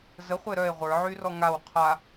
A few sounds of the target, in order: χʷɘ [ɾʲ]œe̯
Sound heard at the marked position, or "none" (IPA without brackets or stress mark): ɾ